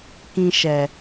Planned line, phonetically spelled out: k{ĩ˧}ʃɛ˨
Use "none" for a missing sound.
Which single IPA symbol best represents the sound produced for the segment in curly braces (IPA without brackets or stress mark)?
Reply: ĩ˧